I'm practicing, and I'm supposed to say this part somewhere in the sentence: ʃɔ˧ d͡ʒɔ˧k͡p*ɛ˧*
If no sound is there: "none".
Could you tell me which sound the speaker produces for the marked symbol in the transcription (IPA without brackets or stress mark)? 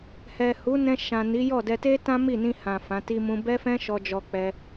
ɛ˧